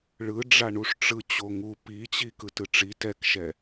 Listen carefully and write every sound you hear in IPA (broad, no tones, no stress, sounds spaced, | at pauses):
ɭ ɯ ɖ͡ʐ a ɳ u ʂ ʈ͡ʂ ɯ t͡ɕ o ŋ u p i t͡ɕ i k ɯ t ɯ ʈ͡ʂ i t ɛ k ʃ ɛ